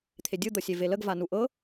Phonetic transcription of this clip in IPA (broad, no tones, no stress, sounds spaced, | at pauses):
t̪ʰ e dʲ ɯ d̪ ɤ sʲ e v e l ə ɡ v a n u ʔ ɤ